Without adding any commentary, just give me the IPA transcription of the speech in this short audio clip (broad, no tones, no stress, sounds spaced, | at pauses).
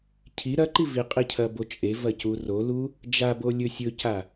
cʰ i ɾ ɐ ǃ i v i qʼ i cʰ ɐ b o t͡ʃʼ e v ɐ c u r o l u | d͡ʒ a b o lʲ ɵ sʲ ɵ c a